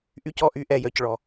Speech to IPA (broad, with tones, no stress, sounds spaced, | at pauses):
ʔ y˧ c ɔ˩ ʔ y˧ ʔ ɛ˩ j œ˩ c ɭ ɔ˩